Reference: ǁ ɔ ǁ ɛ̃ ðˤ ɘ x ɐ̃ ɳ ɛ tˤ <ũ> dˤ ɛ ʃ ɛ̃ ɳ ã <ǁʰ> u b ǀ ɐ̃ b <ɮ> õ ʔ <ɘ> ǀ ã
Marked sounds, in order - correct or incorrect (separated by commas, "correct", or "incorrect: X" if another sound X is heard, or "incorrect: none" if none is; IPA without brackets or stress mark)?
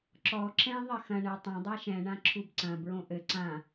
incorrect: õ, correct, incorrect: ɹ, correct